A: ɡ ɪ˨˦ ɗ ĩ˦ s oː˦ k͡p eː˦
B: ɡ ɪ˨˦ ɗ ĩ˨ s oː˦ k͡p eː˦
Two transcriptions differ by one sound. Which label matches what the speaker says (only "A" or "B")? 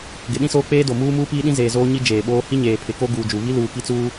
A